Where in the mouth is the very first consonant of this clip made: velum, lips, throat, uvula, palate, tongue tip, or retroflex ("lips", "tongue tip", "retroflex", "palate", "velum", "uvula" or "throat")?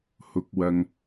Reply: throat